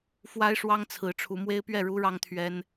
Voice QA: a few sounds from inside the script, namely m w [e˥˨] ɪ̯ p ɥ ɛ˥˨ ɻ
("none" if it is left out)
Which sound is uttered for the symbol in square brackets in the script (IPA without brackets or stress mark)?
e˦